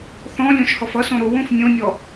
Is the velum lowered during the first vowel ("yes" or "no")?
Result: yes